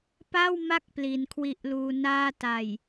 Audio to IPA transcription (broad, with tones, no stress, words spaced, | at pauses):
pa˥˩w ma˥˩k̚ pli˩˦nkʰwi˦˥ʔluː˧ naː˥˩ ta˨˩j